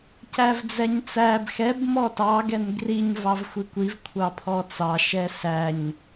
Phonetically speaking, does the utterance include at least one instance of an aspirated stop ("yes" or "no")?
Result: yes